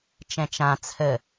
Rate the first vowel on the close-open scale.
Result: mid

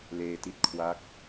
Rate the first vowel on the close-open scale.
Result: mid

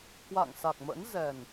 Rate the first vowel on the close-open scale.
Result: open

